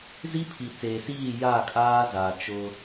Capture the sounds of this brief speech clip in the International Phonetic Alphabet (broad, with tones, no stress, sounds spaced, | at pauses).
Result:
z i˦ pʰ i˨ t͡s eː˨ s iː˦˨ j a˦˨ kʼ aː˦ z a˨ t͡ʃ ʊ˦